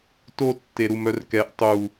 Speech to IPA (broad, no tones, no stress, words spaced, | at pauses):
to tːeɾumœrkɛʔ tˤu